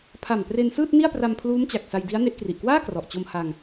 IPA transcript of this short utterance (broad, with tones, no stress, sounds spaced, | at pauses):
pʰ a˨˩ m p r e˧ n s ɯː˥˩ t̚ n i˥˩ a̯ p r a˧ m pʰ l uː˦˥ m t͡ɕ a˨˩ k̚ s a˧ j d i˦˥ a̯ n e˦˥ ʔ k r i˨˩ ʔ k w aː˥˩ k r ɔ˨˩ ʔ t͡ɕ o˧ m h a˧ ŋ